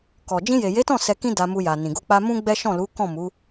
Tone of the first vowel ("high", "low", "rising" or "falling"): low